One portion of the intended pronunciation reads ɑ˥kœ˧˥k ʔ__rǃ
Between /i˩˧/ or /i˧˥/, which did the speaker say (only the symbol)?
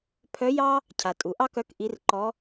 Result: i˧˥